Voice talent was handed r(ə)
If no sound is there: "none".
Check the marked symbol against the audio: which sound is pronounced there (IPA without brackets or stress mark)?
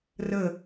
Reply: ə